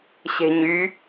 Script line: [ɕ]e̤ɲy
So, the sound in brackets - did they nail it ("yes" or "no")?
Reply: yes